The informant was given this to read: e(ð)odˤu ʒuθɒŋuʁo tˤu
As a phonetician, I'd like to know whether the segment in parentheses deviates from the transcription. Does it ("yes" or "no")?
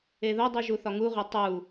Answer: no